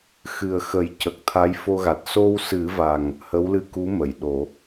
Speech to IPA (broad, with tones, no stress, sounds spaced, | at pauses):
x ɨ˨˩ ə̯ x ə˨˩˦ j c ə˨˩ k̚ t̪ʰ a˧˥ j f o˧ ɣ a˨˩ t̚ s o˧ w s ɨ˨˩˦ v a˨˩ ŋ | h ə˧˥ w l ɨ˧ k u˧˥ m ə˨˩˨ j ɗ o˨˩˦